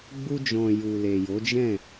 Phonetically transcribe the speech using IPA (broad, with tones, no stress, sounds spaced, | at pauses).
ɡ͡b u˧ d͡ʒ ɔ̃˨ j u˨ l e˨ j o˨˦ d͡ʒ ɛ̃˦˨